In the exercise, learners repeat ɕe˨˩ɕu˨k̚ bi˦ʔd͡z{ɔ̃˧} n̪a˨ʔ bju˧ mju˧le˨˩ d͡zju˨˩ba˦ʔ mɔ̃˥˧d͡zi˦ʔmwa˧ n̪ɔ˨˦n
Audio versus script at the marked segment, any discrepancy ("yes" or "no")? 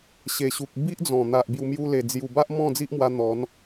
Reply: yes